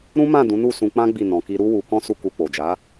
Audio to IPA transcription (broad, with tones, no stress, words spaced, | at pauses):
ɾũ˦mã˦˨ dũ˨˦nu˦˨sũ˧k͡pã˦ ɡ͡bi˦˨ nɔ̃˨ki˧ɾu˦ wu˧kɔ̃˦su˦˨ku˧ k͡po˨d͡ʒa˨˦